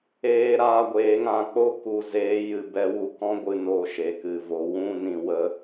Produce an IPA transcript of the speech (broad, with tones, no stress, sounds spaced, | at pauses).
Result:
eː˧ ɾ aː˧ ɡʷ eː˨˦ ŋ ã˨ k͡p o˦ k u˨ z eː˨˦ j ɨ˨ b ɛ˧ w u˧ k ɔ̃˦ ɡʷ ɨ˧ n o˧ ʃ e˨ k ɨ˨ v o˨˦ w ũ˦ n ĩ˧ w ə˦